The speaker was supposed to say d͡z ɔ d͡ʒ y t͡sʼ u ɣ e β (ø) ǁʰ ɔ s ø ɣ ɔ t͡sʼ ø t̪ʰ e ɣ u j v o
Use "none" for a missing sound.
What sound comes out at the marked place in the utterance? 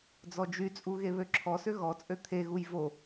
ø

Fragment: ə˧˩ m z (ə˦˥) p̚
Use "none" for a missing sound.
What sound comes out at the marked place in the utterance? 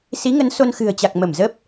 ə˦˥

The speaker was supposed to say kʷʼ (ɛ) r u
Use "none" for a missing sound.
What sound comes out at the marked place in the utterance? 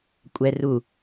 ɛ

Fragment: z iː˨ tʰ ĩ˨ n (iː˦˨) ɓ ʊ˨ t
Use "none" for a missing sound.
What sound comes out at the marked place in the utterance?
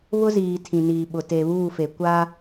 iː˨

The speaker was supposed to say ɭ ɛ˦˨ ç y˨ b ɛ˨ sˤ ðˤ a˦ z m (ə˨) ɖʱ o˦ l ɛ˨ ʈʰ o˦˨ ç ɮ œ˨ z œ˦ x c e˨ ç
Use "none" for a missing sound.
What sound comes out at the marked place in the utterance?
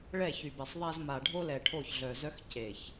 a˨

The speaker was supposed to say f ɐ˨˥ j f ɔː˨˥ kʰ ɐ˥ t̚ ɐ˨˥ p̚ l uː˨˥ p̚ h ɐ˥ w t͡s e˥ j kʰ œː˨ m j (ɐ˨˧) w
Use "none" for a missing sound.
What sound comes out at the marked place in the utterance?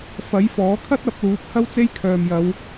ɐ˨˧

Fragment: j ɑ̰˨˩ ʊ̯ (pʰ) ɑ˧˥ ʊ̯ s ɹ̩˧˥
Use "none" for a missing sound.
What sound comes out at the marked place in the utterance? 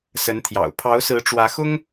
pʰ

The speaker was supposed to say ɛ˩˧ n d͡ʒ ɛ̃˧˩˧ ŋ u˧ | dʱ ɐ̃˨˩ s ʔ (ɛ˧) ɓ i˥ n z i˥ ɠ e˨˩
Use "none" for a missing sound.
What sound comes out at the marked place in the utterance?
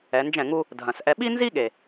ɛ˧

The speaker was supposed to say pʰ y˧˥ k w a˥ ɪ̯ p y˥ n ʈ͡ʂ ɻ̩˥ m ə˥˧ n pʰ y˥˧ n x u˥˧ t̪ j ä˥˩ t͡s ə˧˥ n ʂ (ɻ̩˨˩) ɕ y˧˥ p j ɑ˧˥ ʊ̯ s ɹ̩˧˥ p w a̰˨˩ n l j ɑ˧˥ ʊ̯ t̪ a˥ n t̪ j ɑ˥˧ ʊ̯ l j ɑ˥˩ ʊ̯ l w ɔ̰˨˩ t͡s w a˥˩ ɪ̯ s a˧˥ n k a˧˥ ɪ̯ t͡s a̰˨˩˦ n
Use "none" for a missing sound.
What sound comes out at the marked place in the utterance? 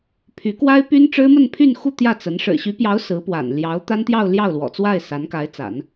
ɻ̩˨˩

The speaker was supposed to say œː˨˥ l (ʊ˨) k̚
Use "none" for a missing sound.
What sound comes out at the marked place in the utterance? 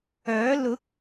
ʊ˨˥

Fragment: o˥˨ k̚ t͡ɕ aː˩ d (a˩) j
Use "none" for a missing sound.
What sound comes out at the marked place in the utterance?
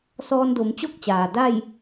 a˥˨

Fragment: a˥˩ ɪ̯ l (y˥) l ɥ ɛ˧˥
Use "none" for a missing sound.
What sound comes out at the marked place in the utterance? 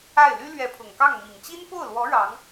y˥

